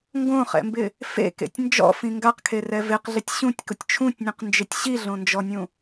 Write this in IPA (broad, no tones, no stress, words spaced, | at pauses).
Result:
ŋɡõχɛ̰mbɪ | fḛkḛtʲ nd͡ʒɔ̰fĩ ŋɡaqkʰerɛ vɪqɮɪtʲ ɕũtʲkʊtʲ t͡ʃʰũtʲnʲũqnd͡ʒɪtʲ ɕiɮõnd͡ʒɔnʲũ